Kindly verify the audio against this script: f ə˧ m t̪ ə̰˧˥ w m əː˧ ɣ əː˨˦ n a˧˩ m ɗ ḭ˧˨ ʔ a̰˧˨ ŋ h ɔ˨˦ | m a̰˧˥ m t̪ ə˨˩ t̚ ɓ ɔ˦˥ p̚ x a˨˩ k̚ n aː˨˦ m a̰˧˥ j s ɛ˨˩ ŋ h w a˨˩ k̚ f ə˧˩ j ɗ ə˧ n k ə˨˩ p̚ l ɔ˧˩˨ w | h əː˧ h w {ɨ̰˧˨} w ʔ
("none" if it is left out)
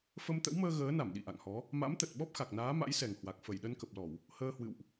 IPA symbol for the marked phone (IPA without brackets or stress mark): ɨ̰˧˨